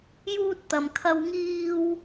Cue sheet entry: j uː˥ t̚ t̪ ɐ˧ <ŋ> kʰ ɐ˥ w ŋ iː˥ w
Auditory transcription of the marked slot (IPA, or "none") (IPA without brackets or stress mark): m